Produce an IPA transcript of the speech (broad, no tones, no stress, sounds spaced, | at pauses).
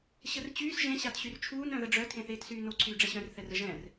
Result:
ɕ ə r t͡ɕ yː s ʒ ẽ ɕ a t ɕ y r t͡ʃʰ uː n œ̃ ð ə ɖ͡ʐ œ tʰ ẽ θ eː t s yː n o ǀʰ yː ɖ͡ʐ ɛ ɕ œ̃ r θ ɛ r ə ʒ ɛ̃ r